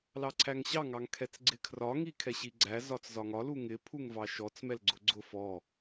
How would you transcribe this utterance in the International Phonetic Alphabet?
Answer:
lɑǀʰæŋɕɑ ŋɑŋkʰɛt͡sɡ͡ǀɪkʰrɒ ŋikʰɛɕiɡ͡ǀæ zɒt͡szɒŋɒ luŋɪ pʰuŋvɑʃɔt͡s mɛlɡ͡ǀʊɡ͡ǀʊ fɔ

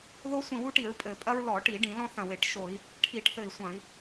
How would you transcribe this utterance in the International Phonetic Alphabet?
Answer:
ðo˦ sʷĩ˧˩wu˦ʈi˧˩˧ɹ pʼɘ˧˩˧ pʼɐ˦ɹlɔ˧˩˧ʈi˧˩˧ ɖĩ˧˩˧lɔ̃˦θɐ̃˧˩we˧˩˧ʈ ʃo˧˩˧i̯ | ʈʰi˧˩˧ʈθɘ˧˩i̯sʷɐ̃˧˩˧i̯

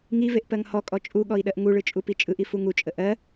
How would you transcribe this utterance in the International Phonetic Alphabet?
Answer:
ŋiveʔ pɜŋhɔkʼɔ t͡ʃʼuɠɔi̯ ɗɜʔŋuɭɯ t͡ʃʼupit͡ʃʼɯʔi fuŋut͡ʃʼə ʔɜ

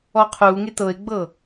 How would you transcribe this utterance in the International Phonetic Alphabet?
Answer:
ɔqʰuŋe tɤe̯ɡ͡bɤ

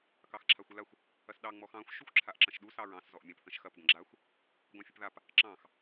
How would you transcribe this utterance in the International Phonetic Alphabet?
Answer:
kɑxǁʰaxʷəlaxʷ | ɐsɗɑ ŋ͡mɔxɑ̃xʷ ʃuxʷǁʰaʔǁɐ̃ʃɗu sɑɹɑ̃s zɔʔmʲãp θɐ̃ʃxɐp ɡɐ̃ɡ͡ǁaxʷ | ɡʷɑ̃fʲəpðap | ǁɑ̃x

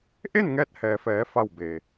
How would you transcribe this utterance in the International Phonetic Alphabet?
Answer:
ʔe˥˨nŋɛː˧t̚hɛː˩fɛː˩˧ fa˥˨wbe˩

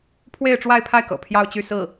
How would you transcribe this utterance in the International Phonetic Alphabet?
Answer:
pʰwe˥˧ɪ̯ʈ͡ʂwa˥˧ɪ̯pʰa˥˩ɪ̯kɤ̰˨˩ pʰjɑ˥˧ʊ̯t͡ɕy˥˧sɹ̩˥˩

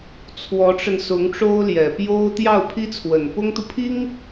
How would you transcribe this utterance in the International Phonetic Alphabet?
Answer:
t͡sʰwɔ˧˥ʈ͡ʂə˧n sʊ˧˥ŋʈ͡ʂo˥ʊ̯ljɛ˨˩ pjo˥ʊ̯ t̪jɑ˥˩ʊ̯pʰi˥t͡sʰwə˨˩n pʊ˥ŋt̪u˨pʰi˥ŋ

